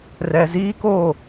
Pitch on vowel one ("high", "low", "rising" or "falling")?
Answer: low